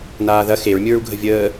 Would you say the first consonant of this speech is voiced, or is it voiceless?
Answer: voiced